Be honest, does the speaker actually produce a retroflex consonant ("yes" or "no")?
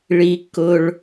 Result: yes